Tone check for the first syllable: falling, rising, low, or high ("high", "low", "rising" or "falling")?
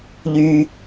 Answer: low